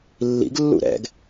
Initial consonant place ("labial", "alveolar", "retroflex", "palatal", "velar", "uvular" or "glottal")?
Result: alveolar